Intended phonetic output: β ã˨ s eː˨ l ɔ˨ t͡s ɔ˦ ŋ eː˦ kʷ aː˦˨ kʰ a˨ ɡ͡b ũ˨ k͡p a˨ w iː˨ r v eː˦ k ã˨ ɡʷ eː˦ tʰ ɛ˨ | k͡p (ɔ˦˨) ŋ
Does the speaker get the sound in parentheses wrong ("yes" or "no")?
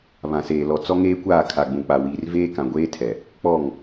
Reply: no